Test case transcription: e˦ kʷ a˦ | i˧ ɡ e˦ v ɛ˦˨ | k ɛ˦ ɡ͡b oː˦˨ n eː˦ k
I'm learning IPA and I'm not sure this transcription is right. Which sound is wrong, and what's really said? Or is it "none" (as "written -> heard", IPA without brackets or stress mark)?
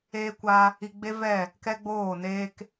ɡ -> ɡ͡b